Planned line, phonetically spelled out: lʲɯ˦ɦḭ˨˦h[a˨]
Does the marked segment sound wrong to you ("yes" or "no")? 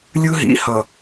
yes